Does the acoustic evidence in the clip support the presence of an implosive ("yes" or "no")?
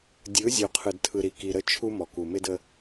no